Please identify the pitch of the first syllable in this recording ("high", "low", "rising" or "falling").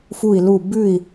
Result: falling